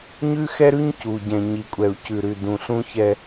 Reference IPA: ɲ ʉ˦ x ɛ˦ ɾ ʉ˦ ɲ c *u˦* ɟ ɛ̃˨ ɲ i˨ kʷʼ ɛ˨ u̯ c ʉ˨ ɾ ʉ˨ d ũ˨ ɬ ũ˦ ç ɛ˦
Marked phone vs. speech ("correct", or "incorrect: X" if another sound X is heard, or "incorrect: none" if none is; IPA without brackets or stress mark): incorrect: u˨